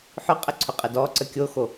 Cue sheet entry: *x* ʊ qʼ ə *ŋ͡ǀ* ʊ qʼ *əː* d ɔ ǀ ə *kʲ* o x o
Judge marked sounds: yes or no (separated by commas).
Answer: no, no, no, yes